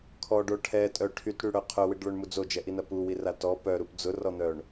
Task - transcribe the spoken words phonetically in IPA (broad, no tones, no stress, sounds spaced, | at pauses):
kʰ ɔ ɖ o ʈʰ ɛ tʼ œ ʈʰ y t ɽ y ɽ œ qʰ œ w i ɖ ɭ œ ɳ m u d͡z o d͡ʒ ɛ ʔ i n ɐ p u w i r a t ɔ p œ ɾ u p d͡z ʊ r ɔ n̪ œ ɳ